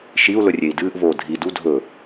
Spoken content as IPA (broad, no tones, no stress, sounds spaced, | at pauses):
ʃ i u̯ l ɵ rʲ e i̯ d ɨː ʔ v oː dʱ i d u dʱ ɵ